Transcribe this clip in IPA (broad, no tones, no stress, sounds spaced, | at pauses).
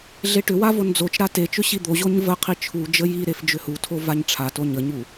ɮ e ʈ ʏ w a v o n d͡z o t͡ʃ ɾ a t e t͡ʃ ʏ ɕ i d̪ o ʑ o ɲ v ə qʰ i t͡ʃʰ u d͡ʒ ə j i ɾ e f d͡ʒ ʏ h u tʰ o v a ɲ ʈ͡ʂʰ a t o ɲ ə ɲ u